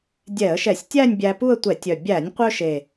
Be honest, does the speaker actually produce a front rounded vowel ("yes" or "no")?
yes